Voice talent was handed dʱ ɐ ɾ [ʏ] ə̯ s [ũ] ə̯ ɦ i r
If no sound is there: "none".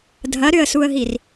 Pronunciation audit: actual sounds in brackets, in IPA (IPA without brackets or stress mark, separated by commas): ʏ, u